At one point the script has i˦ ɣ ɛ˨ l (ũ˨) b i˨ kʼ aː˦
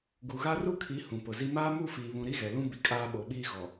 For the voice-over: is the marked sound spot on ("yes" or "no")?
no